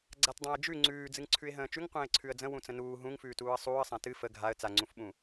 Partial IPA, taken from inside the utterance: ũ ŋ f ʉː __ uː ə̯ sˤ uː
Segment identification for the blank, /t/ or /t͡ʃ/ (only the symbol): t